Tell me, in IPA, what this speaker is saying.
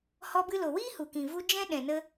h ɔ˧ b ɨ˧ l o˨ w iː˦ h u˨ k ĩ˨ v u˧ d͡ʒ ɛ̃˦ ɗ ɛ̃˨ n ə˧

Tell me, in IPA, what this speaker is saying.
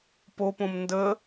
p o p õ m n d ə

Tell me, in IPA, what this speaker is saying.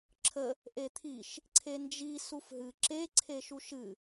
ǁʰ ə | ʔ e t̪ʰ i ʃ | ǀʰ e n d͡ʒ i s u f ɦ ɨ ǁ e ǀʰ e ʃ u ʃ ɨ

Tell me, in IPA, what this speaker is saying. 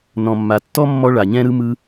n ɔ̃˨ mː a˨ tː ɔ˥ mː ɔ˦ ɭ a˨ ɲ ɛ̃˥ ɾ ɯ˥ m ɯ˦

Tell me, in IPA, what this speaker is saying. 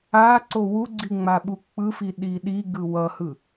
a ǀ o w u ɡ͡ǀ i ŋ͡m a ɓ u k͡p ɯ f i ɗ i ɗ i ɡ ɯ w ʌ h ɯ

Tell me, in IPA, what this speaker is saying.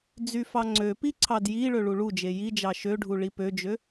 d͡z y f ɑ ŋ͡ǀ ø p i ǀʰ ɑ d j i ɭ ø ɭ u ɭ u d͡ʒ e j i d͡ʒ ɑ ʃ ø ɖʱ u ɭ i p ø d͡ʒ ø

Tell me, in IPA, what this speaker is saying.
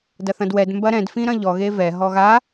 d ɐ θ ɐ̃ d w ɛ d m b ɐ ɾ ɛ̃ d f ĩ ɾ ɐ̃ ʎ ɔ ɣ e v ɛ ɦ ɔ ɣ a

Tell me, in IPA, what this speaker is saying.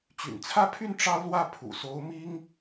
t͡ɕ y̰˨˩ n t͡sʰ ä˥˧ pʰ y˥˩ n ʈ͡ʂ ɑ˥ ʊ̯ l w ä˥˩ pʰ ṵ˨˩ s o˧˥ ʊ̯ m i˥ ŋ

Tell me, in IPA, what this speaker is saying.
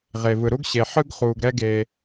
ʁ e˩ v ɯ˩ ɾ u˥ ɡ ɕ e˩ ħ ɯ˥ ɡ χ uː˩ ɡ ɾ ɛ˥ ɡ eː˩

